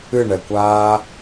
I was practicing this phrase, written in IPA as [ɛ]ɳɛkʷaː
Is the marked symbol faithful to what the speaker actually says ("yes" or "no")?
no